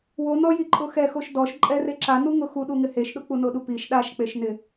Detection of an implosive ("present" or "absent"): present